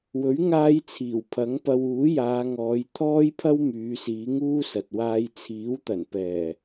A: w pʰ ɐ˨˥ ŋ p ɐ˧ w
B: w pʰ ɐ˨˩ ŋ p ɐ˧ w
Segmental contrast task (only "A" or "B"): A